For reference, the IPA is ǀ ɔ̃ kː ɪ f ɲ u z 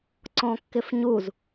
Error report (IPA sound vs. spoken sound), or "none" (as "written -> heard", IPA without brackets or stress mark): none